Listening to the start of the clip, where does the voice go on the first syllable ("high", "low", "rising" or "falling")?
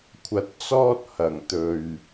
low